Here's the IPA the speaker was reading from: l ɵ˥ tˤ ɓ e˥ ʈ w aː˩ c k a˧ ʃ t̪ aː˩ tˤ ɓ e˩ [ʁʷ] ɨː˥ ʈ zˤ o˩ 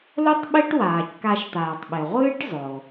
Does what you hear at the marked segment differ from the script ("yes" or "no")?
no